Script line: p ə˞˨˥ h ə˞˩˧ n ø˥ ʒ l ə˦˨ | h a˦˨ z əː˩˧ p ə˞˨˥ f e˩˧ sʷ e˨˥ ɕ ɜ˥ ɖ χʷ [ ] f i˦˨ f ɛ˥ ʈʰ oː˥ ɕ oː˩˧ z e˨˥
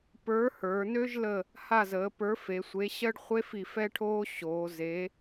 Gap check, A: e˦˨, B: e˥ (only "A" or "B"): B